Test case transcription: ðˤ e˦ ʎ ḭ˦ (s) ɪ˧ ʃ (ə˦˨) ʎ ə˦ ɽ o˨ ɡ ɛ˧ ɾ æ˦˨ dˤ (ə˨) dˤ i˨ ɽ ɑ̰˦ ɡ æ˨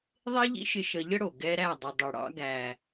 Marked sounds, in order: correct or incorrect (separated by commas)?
incorrect, incorrect, correct